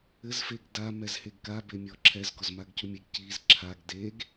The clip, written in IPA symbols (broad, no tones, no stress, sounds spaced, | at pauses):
ɘ z f e ɡ d a m ɛ z h e ɡ k a b e mʲ ɔ ǁʰ ɛ z ɡ ɔ z m a ɡ c u mʲ e ɡ c i z ǁʰ a ɡ d e ɡ